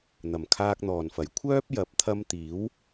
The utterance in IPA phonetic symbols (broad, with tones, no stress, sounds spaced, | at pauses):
n̪ ɐ˨˩ m kʰ aː˧ k̚ n̪ ɔː˨˩ n f ɐ˨˩ j kʷʰ œː˥ p̚ j ɐ˨˥ p̚ t̪ʰ ɐ˧ m t̪ iː˨˥ w